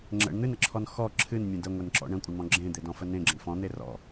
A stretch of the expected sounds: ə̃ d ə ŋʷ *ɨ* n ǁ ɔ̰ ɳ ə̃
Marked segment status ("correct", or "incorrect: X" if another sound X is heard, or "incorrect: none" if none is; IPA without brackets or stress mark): incorrect: e